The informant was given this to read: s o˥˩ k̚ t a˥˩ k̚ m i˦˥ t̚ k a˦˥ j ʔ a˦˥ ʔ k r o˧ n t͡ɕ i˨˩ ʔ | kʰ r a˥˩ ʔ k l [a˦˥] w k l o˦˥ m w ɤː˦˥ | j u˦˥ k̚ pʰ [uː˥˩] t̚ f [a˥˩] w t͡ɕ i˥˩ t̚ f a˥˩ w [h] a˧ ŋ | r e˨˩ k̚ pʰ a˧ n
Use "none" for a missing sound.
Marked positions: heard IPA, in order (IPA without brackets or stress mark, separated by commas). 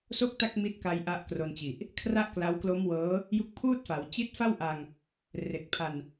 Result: a˦˥, uː˥˩, a˩˦, ʔ